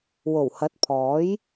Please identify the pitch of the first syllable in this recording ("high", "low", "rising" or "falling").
low